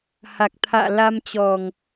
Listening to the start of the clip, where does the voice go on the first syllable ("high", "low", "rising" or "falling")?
low